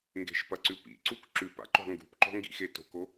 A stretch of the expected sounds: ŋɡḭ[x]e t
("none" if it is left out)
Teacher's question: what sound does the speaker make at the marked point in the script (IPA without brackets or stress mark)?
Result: x